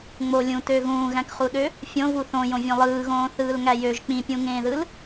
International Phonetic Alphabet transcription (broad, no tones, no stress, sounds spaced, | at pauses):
ŋ͡m o lʲ ũ t ø ɣ ũː ɣ æ̃ k χ u ɗ ø | fʲ õ v u θ õ j õ vʲ õ lˠ ɯː ɣ õː θ ɯː l ŋ æ j ø ʒ k͡p ĩ pʲ ũ ŋ ẽː ð ɯ l